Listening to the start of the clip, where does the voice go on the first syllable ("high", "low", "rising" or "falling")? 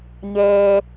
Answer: low